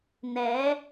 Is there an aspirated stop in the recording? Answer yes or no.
no